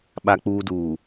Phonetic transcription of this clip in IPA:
ɓ a˨ k͡p uː˨ d uː˨

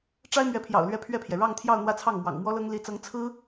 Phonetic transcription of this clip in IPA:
ʈ͡ʂ a˥ ɪ̯ m ɥ ɛ˧˥ pʰ j ɑ̰˨˩ ʊ̯ l ɥ ɛ˥ pʰ ɥ ɛ˥˩ pʰ j ɛ˩ ɻ ɑ˥˧ ŋ t̪ʰ j ɑ˥˧ ʊ̯ n̪ w ä˥˧ t͡sʰ ɑ˥˩ ŋ m w ɑ̰˨˩ ŋ m w ɔ˥ l ɤ˥ ŋ l i˧˥ t͡s ɤ˧˥ ŋ t͡sʰ ɹ̩˥

